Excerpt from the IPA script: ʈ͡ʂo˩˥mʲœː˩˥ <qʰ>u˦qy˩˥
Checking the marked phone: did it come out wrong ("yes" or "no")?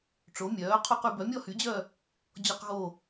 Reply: no